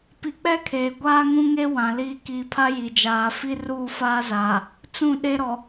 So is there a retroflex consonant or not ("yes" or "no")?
no